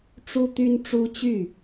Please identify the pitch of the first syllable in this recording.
high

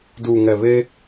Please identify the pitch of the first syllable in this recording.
low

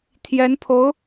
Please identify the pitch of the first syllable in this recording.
rising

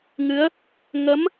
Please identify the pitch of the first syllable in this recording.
rising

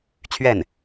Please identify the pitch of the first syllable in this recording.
falling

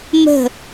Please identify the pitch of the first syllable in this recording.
falling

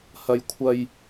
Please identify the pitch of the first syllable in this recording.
high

